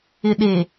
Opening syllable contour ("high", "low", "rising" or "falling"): low